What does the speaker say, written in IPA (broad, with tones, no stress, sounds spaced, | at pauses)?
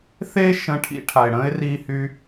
θ e˦ ʃ ə̃˧ ʈʰ ḭ˧ ʈʰ a˨ ɪ̯ ɽ ə̃ː˦ ɪ̯ r iː˦ h yː˦